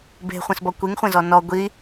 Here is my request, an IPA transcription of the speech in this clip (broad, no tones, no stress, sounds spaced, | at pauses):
b e̤ χʷ ẽ s b ɔ kʷ i ŋ χʷ ẽ z ɔ n ɔ ɡʷ i